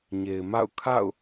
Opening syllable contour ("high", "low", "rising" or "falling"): low